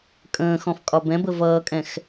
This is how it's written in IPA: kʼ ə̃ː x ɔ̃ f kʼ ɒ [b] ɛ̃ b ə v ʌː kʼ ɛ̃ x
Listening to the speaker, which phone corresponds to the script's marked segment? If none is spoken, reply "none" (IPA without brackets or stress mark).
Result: b